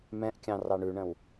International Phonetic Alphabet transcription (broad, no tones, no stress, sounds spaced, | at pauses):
m ɛ̃ ʔ kʲ ɑ̃ r ɑ ɳ ʉ ɳ ə̃ w